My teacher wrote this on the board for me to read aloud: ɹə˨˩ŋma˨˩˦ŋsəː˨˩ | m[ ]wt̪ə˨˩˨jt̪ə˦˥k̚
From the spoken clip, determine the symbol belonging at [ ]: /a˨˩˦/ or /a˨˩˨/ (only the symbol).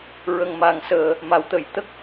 a˨˩˦